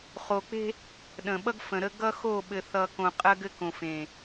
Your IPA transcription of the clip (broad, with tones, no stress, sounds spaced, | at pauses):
χ o˨ k͡p e̤˦ | ɗ ə̃˨ ɓ ʌ˦ ɡ f ə̃˨ ɾ ə˦ ɡ ʌ˦ x o˦˨ ɓ ɘ˨ θ ʌ˨ k õ˨ qʼ ɜ˦ ɡ ɘ˦ k õ˨ f ẽ˨